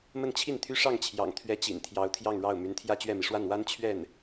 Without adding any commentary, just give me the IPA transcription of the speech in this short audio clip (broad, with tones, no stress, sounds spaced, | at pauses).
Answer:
m ə˥˧ n t͡ɕʰ i˥˩ n t̪ʰ y˥ ʂ ɑ˥˩ ŋ t͡ɕʰ j ɑ̰˨˩ ŋ t̪ʰ ɥ ɛ˧˥ t͡ɕ ḭ˨˩ n t̪ʰ j ɑ˧˥ ʊ̯ t̪ʰ j ɑ˥˧ ŋ ɻ ɑ˥˩ ʊ̯ m y˧˥ n t̪ʰ j ä˥˧ t͡ɕ ɥ ɛ˥˩ m i˩ ʂ w a˥˩ n w a˥ n t͡ɕʰ ɥ ɛ˥˩ n